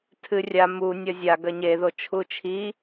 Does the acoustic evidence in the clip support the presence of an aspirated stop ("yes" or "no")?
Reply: yes